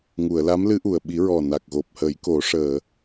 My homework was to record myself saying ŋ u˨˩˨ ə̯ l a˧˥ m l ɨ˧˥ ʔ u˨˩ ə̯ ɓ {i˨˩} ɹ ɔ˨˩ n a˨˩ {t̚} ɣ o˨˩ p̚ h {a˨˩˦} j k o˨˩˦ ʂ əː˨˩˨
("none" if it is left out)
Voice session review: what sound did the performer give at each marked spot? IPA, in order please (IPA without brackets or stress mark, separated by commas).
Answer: i˨˩˦, k̚, ə˨˩˦